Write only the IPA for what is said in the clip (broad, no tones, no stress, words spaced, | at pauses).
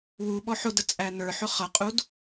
wuɓɔ ħʊdə t͡sʼæn̪ə˞ħʊ χʌqʼud